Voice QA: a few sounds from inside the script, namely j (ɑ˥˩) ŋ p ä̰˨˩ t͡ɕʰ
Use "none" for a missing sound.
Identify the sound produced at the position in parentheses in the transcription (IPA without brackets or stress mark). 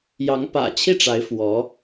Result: ɑ˧˥